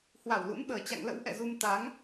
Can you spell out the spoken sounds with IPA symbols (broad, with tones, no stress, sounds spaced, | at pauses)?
h w a˧˩ w l ṵ˧˥ n ɓ əː˨˩ t͡ɕ a̰˧˨ ŋ l ə̰˧˥ w ʔ ɛ̰˧˨ z u˧ m t̪ a˨˦ ŋ